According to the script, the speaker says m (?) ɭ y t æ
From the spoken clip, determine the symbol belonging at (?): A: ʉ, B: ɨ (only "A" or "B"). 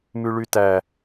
A